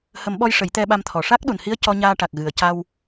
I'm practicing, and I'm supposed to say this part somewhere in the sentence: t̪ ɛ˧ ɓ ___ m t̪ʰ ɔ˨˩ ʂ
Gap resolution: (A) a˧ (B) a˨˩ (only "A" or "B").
A